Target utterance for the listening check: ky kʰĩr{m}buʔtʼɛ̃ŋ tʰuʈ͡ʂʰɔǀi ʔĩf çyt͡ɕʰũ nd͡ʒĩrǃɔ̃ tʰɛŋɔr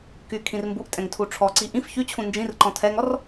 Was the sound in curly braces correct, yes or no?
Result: yes